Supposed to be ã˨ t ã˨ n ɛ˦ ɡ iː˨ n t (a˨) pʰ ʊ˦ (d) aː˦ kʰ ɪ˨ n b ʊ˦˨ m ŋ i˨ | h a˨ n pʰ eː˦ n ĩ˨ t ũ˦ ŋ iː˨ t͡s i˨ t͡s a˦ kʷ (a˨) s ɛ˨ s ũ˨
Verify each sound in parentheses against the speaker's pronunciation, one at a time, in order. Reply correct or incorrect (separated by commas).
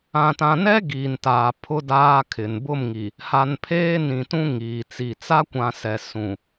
incorrect, correct, incorrect